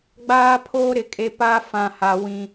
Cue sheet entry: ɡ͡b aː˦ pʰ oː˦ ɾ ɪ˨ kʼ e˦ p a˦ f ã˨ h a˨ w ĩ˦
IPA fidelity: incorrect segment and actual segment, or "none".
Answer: none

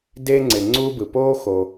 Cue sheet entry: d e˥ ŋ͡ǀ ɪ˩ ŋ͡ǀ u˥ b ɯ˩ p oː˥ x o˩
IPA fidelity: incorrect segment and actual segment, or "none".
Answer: none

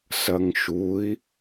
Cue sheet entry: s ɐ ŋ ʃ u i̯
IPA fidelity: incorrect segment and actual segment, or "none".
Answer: none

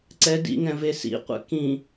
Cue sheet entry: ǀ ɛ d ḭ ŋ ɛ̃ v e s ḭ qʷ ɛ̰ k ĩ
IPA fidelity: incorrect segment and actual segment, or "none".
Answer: none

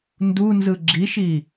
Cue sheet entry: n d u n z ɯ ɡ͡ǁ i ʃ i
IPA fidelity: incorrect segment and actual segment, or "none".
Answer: none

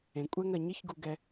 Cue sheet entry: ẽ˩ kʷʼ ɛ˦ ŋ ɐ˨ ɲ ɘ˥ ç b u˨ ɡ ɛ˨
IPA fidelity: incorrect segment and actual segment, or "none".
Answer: b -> ɡ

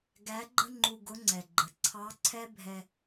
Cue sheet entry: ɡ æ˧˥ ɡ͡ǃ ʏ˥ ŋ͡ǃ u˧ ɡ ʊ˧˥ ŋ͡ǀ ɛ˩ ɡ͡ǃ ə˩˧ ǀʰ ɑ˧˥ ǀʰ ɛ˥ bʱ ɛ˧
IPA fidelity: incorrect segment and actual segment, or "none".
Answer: ʏ˥ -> ə˥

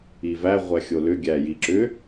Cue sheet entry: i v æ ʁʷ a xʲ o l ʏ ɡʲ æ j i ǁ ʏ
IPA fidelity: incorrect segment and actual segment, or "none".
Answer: a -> æ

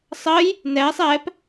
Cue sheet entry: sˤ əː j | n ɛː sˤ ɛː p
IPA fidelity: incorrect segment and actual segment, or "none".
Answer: none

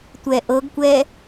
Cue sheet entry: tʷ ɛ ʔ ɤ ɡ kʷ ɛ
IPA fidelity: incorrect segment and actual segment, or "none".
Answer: none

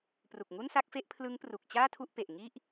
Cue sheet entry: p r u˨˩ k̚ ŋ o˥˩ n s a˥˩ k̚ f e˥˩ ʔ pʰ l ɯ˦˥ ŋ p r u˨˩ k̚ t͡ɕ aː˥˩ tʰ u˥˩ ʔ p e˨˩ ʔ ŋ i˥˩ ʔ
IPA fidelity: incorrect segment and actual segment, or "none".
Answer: o˥˩ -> u˥˩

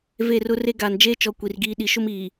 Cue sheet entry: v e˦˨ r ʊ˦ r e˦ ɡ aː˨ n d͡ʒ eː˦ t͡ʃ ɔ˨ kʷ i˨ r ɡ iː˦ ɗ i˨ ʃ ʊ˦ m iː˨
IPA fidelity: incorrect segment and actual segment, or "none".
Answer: none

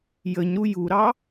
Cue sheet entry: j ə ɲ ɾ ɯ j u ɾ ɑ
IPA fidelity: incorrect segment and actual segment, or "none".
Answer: ɯ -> u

